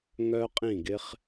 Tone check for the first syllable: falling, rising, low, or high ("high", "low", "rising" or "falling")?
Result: high